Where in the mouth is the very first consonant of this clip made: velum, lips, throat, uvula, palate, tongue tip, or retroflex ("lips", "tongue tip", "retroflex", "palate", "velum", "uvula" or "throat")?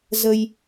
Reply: tongue tip